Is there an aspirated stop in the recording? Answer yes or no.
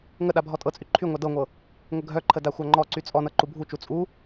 yes